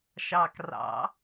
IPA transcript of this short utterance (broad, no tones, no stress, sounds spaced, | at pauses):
ʃ ɑ k r ɑ̰